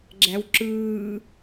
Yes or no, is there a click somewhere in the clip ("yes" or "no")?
yes